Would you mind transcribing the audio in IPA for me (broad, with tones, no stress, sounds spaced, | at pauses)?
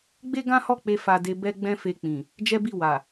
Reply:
ɡ͡b e˦ ɡ ã˦ h ɔ˦˨ k͡p e˧ f a˧ d e˧ b ɛ˦ ɡ͡b ɛ̃˦ f e˧ k͡p ĩ˨ | d͡ʒ ɛ˦ b i˦˨ w a˨